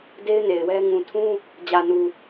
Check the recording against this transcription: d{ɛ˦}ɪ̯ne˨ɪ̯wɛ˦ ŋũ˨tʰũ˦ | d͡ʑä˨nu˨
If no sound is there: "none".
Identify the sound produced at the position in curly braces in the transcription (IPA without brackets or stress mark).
e˦